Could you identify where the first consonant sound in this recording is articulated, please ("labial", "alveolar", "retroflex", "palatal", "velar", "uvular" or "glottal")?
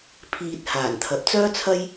labial